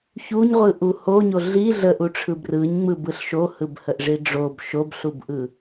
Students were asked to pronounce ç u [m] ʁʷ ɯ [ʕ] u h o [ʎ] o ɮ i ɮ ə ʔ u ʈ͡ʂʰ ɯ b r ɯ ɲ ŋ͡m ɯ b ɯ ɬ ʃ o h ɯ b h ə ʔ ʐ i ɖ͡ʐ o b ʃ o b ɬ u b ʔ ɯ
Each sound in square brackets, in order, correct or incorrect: incorrect: ɲ, incorrect: ʔ, incorrect: ɲ

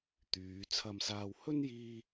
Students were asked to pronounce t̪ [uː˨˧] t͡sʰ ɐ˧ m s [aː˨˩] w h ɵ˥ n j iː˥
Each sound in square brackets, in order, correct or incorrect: incorrect: yː˨˧, incorrect: aː˧

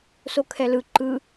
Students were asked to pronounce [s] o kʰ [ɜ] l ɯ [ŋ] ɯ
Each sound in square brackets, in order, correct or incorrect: correct, incorrect: ɛ, incorrect: ǃ

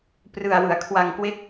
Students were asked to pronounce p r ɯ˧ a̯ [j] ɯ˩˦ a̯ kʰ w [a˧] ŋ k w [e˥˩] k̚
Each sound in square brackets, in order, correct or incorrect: incorrect: w, correct, correct

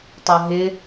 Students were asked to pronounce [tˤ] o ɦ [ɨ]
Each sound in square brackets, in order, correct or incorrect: correct, incorrect: ɪ

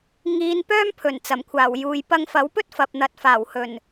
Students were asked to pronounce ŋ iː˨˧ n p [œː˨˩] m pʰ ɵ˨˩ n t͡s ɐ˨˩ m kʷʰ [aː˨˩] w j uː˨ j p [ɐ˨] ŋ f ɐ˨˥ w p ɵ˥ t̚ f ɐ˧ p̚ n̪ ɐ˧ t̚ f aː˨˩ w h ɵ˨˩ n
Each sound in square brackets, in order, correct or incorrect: incorrect: œː˥, correct, incorrect: ɐ˧

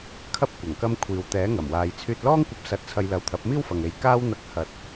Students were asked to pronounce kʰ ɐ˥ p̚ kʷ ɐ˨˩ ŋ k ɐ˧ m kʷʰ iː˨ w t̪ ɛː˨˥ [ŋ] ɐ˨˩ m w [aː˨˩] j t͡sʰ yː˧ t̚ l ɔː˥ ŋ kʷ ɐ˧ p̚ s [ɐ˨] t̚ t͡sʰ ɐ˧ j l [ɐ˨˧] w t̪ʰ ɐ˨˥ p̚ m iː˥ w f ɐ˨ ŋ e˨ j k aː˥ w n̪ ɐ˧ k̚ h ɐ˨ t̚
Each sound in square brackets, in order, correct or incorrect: correct, incorrect: aː˨, incorrect: ɐ˧, incorrect: ɐ˨

